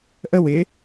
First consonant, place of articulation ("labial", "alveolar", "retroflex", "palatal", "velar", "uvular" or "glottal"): glottal